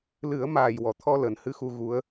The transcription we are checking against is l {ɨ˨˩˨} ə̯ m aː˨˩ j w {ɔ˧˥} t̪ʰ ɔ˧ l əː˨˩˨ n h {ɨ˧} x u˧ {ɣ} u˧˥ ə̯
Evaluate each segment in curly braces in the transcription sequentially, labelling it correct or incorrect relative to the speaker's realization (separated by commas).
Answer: incorrect, incorrect, correct, correct